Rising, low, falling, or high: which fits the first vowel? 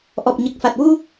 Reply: low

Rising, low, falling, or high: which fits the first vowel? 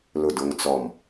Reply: falling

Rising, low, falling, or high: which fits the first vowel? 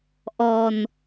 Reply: low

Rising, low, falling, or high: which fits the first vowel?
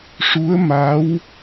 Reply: rising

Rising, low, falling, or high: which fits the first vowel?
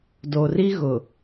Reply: low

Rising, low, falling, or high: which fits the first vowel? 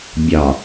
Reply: low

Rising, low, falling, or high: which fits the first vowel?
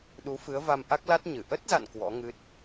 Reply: rising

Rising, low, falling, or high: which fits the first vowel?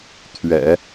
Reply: low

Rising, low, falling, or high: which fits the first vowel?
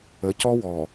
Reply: rising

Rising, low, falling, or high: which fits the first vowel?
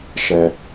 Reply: low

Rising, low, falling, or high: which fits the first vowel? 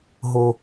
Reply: low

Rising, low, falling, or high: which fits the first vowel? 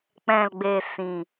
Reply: low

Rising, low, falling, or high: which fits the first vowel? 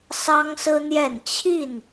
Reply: high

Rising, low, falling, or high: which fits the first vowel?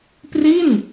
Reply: falling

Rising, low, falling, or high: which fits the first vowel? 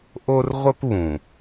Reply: high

